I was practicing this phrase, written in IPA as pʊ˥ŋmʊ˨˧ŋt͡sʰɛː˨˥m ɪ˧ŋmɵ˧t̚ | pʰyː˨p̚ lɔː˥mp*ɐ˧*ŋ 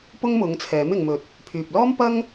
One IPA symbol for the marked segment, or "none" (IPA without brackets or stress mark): ɐ˥